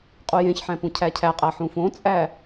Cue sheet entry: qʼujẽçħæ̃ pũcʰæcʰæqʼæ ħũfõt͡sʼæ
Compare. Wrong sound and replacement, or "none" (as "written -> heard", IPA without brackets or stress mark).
none